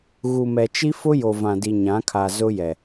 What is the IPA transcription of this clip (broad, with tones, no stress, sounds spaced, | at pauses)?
ɣ u˨ m ɛ˨ t͡ʃ i˦ f ʊ˦ j o˨ v ã˨ d i˨ ɲ ã˨˦ kʰ a˨ z ʊ˦ j ɛ˨